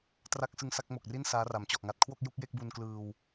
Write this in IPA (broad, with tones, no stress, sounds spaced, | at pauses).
t r a˦˥ k̚ s ɯ˧ ŋ s a˥˩ k̚ m o˨˩ k̚ r i˥˩ n s aː˦˥ r a˩˦ m t͡ɕ ɔ˨˩ ʔ ŋ a˦˥ t̚ kʰ w o˥˩ k̚ j u˥˩ k̚ j e˥˩ k̚ b u˧ n k l ɯː˧ w